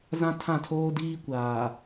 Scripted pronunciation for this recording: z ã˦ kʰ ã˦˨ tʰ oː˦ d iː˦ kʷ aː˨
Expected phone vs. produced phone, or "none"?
kʰ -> tʰ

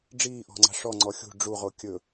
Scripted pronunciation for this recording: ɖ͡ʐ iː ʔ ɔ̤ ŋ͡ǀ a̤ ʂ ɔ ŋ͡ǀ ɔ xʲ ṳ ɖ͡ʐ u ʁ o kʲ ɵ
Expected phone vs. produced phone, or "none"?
none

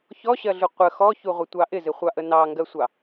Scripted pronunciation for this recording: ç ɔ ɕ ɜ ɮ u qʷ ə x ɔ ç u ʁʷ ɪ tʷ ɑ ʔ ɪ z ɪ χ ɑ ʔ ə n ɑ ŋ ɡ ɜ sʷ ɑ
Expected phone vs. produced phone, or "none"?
χ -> χʷ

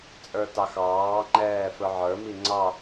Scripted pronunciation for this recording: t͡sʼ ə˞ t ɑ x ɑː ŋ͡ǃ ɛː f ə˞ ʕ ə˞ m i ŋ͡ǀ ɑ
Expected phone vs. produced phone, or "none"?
none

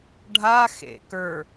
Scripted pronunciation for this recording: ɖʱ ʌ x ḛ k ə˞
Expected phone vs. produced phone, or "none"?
ʌ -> a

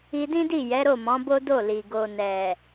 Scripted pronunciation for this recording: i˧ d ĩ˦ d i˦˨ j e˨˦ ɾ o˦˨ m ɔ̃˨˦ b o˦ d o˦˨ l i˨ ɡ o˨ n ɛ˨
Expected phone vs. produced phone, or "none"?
e˨˦ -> ɛ˨˦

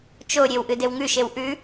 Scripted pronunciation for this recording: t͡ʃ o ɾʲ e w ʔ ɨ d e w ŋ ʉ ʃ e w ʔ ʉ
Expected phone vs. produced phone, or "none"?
none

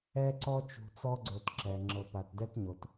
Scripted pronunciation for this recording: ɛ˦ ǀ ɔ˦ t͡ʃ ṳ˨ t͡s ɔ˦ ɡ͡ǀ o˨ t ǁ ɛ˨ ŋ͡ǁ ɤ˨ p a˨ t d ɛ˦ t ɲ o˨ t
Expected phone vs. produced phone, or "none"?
none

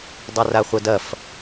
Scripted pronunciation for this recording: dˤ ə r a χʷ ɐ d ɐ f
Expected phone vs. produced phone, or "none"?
ə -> ɐ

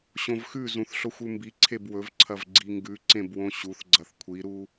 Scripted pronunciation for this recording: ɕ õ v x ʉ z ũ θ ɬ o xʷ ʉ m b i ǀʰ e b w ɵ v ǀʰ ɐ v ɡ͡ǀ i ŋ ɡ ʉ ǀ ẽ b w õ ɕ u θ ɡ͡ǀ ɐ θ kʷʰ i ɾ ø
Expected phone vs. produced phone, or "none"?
ø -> u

